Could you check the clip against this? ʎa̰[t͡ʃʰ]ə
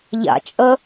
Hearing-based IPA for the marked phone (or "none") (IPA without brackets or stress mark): t͡ʃʼ